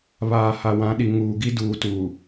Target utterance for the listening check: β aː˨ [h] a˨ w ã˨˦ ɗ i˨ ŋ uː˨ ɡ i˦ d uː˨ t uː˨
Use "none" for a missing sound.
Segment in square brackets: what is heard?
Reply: h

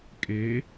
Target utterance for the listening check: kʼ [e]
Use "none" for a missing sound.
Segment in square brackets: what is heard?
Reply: e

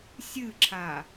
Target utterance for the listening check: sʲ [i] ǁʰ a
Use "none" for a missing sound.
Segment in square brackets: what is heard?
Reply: ɨ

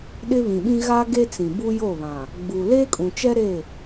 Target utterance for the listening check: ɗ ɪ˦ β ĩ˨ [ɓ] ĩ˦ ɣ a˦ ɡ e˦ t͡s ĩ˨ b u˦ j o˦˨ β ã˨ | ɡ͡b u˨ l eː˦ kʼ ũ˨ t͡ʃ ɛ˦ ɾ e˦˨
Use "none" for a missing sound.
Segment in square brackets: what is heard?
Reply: ɓ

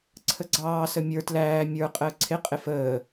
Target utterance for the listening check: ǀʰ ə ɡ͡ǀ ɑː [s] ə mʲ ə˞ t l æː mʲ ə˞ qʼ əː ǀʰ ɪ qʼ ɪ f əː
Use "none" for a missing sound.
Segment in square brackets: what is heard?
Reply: s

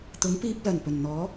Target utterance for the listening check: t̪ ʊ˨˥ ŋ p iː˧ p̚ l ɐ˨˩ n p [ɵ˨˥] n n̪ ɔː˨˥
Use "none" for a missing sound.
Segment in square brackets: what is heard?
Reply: ɵ˨˩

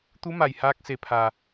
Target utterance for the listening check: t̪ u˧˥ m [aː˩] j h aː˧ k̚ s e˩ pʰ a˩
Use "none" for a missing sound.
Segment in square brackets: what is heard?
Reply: a˩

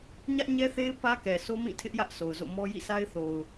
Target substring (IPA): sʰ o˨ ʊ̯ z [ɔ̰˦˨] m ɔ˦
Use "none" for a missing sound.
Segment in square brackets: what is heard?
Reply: o̰˦˨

